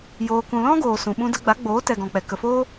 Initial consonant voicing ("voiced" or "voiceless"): voiced